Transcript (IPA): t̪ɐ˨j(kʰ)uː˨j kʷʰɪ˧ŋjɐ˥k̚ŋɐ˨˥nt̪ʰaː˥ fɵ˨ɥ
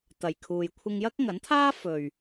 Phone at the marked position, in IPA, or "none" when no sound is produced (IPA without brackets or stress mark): kʰ